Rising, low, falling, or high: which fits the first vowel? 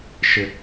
low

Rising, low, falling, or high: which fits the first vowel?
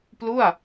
falling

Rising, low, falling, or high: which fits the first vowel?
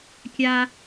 high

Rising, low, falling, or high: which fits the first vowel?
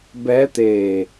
rising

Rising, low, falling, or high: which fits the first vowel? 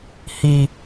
low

